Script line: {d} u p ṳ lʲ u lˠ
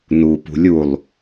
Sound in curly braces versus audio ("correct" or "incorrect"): incorrect